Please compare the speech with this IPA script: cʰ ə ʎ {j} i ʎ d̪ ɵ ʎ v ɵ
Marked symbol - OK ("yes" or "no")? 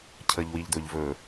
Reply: no